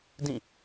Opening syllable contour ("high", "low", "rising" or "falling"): falling